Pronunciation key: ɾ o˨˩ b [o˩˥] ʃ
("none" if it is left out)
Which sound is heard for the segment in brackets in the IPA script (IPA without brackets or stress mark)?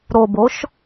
o˩˥